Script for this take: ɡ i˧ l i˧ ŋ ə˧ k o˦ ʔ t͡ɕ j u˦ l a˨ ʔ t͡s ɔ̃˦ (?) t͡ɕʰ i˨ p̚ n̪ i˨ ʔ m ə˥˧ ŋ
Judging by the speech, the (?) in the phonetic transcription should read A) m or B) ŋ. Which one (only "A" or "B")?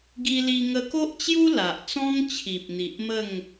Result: B